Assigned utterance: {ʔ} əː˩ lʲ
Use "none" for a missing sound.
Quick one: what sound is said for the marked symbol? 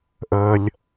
ʔ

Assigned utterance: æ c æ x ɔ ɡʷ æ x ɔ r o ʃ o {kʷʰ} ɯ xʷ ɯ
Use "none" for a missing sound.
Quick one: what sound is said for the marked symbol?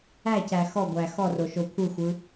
kʷʰ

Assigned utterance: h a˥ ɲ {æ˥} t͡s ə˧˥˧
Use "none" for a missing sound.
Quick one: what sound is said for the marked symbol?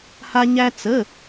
æ˥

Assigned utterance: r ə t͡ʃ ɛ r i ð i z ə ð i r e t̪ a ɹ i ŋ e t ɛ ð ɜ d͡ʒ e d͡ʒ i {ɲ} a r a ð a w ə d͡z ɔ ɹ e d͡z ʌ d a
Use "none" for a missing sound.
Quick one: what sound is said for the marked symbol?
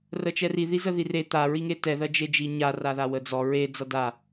ɲ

